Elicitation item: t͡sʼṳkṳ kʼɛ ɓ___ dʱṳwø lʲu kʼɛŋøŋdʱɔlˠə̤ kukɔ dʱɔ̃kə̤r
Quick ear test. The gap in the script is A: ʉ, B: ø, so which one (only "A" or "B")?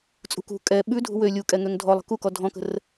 A